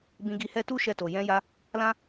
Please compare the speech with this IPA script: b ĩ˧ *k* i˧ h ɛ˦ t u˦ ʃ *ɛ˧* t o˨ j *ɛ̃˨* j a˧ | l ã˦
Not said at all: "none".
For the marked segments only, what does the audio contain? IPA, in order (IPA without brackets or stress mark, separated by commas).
ɡ, ɛ˧, ɛ̃˧